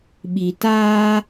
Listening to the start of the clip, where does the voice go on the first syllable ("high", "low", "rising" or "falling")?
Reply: low